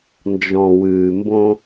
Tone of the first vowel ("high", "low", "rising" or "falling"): low